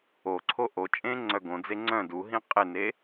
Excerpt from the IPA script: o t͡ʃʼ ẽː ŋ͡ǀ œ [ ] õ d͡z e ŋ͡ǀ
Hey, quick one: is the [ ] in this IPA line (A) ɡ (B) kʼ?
A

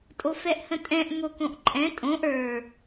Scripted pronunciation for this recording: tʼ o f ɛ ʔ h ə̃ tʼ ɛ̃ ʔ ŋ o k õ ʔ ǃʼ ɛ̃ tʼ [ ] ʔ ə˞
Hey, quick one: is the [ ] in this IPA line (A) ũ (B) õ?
B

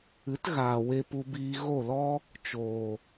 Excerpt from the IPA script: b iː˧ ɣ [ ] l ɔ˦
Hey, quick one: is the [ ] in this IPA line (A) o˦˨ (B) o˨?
A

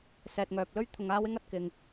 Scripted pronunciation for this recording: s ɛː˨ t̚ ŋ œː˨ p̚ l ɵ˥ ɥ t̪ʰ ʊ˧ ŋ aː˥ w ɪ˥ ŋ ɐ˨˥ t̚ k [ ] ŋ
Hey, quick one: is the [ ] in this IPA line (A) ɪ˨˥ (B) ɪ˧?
B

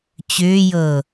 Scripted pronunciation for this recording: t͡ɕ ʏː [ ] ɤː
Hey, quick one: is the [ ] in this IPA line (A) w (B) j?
B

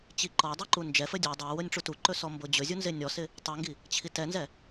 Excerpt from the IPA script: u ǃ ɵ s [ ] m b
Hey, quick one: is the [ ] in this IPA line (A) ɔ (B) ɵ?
A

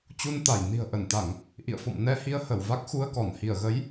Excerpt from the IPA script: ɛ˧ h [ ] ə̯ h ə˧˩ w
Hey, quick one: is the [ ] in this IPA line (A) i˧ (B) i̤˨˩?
A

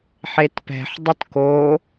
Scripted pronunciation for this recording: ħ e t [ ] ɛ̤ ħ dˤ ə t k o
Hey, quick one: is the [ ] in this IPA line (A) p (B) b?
A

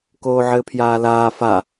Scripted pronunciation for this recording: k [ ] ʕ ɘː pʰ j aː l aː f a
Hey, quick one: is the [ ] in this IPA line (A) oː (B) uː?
A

